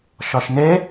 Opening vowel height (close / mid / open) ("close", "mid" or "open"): open